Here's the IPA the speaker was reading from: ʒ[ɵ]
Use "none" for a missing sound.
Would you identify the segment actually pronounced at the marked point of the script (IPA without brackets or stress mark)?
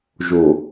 o